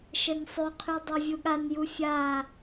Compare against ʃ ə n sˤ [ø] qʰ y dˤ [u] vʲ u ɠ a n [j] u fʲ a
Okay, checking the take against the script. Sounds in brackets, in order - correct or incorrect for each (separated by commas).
correct, incorrect, correct